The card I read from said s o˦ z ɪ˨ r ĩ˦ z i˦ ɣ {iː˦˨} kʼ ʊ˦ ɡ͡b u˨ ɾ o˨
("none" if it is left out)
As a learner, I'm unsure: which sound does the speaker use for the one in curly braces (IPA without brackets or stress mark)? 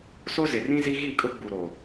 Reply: i˦˨